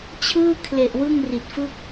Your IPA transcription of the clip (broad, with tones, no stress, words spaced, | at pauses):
t͡ɕʰɯː˥˩kʰle˨˩ʔ wɯ˥˩ŋri˨˩t̚fɯ˥˩k̚